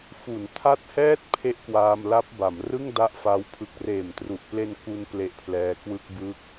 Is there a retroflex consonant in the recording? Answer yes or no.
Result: no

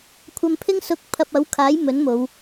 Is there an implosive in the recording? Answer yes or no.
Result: no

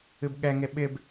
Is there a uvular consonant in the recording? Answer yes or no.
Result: no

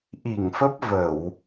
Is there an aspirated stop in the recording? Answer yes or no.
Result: no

